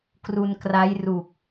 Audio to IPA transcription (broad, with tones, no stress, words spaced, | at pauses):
kru˧nkra˦˥jru˨˩k̚